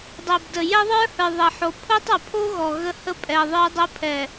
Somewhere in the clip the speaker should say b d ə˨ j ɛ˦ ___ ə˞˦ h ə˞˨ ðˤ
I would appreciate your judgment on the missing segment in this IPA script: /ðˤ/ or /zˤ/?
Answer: ðˤ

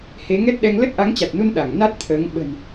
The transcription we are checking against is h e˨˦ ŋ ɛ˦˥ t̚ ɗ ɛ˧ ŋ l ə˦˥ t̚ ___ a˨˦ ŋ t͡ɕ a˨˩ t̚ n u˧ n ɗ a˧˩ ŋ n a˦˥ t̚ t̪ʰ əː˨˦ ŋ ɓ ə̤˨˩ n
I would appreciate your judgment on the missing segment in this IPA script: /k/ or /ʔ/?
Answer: ʔ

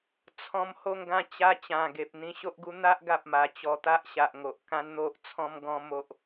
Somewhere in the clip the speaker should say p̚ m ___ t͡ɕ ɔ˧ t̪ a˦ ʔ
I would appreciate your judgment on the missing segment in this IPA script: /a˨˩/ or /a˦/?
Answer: a˨˩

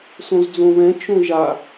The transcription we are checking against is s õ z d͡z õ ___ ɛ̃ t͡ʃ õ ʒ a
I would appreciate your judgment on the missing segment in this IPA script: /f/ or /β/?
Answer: β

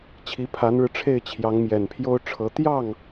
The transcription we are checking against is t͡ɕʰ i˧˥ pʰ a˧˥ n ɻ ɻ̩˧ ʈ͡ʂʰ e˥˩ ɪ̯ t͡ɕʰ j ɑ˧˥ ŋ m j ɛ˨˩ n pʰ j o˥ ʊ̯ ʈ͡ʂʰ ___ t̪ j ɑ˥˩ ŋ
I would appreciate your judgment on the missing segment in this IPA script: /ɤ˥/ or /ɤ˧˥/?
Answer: ɤ˧˥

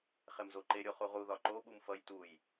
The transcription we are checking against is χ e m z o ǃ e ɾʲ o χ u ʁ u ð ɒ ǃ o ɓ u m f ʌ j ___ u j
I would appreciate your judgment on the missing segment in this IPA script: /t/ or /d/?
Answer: t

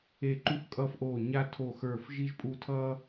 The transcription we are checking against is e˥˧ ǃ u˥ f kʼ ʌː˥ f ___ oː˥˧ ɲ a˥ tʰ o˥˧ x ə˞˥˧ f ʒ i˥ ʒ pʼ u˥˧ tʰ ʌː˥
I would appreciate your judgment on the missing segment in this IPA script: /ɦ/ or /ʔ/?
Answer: ʔ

